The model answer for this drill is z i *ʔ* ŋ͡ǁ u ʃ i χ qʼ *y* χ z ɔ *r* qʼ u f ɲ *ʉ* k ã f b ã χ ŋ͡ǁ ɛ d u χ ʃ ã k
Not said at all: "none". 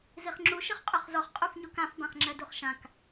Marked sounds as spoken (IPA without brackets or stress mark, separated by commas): χ, y, χ, u